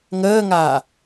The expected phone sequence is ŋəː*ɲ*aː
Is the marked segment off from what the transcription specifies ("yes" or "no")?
yes